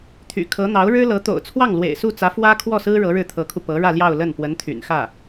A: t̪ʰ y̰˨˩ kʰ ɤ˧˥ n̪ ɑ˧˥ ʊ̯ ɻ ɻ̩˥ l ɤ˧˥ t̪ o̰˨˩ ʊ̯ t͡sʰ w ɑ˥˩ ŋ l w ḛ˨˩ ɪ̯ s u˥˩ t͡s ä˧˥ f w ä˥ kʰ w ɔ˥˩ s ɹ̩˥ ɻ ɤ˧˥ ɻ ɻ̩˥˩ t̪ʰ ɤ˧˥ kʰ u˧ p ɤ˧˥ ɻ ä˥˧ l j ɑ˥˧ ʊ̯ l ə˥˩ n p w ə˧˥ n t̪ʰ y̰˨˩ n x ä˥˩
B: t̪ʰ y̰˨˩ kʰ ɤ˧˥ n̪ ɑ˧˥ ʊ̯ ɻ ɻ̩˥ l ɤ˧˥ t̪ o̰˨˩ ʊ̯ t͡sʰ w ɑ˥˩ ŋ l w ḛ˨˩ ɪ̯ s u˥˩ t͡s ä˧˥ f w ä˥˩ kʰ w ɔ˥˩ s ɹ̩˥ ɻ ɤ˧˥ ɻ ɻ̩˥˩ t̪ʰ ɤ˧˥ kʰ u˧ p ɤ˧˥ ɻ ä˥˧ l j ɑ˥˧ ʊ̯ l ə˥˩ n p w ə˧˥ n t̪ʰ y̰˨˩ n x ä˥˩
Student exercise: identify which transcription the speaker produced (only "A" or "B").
A